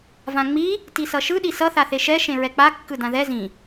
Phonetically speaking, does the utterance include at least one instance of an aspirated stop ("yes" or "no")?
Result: no